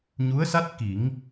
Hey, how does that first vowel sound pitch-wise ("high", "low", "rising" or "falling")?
rising